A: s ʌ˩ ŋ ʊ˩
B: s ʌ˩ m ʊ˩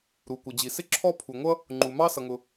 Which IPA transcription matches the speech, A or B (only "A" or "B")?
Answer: A